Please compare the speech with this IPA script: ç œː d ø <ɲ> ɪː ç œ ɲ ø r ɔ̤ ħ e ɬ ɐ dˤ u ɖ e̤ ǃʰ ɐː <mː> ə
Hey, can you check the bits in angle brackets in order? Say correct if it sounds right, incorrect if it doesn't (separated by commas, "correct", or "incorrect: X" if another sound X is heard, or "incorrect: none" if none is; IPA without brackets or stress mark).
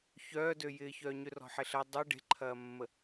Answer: incorrect: j, correct